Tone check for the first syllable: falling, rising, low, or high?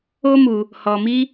high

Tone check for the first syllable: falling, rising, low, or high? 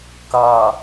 low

